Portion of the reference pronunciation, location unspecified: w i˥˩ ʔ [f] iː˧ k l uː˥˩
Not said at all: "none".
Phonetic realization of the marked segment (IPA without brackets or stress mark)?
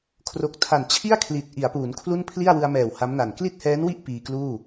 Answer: p